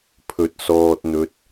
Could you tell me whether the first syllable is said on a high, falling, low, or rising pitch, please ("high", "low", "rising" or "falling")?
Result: low